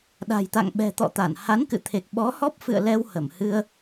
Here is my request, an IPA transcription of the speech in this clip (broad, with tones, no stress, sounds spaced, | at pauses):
ɗ a̤˨˩ j t̪ a̰˧˨ ŋ ɓ ɛ̤˨˩ t̪ ɔ̰˧˨ t̪ a˧˩ n h a˨˦ n k ɨ̰˧˨ t̪ʰ e˨˩ k̚ ɓ ɔ˨˦ h ɔ˦˥ p̚ f ɨ̰˧˨ ə̯ l ɛ˧ w h ə˧˩ m h ɨ˧ ə̯